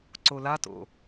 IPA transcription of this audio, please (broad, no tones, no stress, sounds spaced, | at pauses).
ǀ o l a t o̰